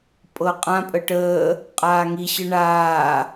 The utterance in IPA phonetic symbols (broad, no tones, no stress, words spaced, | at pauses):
pʼɤqʼã pʼəʈəː | qʼaːŋi ɕɯɳaː